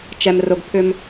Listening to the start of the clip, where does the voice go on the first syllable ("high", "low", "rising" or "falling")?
low